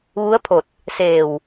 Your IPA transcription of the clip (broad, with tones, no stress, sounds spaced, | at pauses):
ʋ u˧˥ ə̯ pʰ o˧˩ t̚ | s e˧˩ w